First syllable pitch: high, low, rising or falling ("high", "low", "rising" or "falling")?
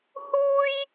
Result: high